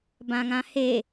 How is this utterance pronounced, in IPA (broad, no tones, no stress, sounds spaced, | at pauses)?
b ã ŋ ã h e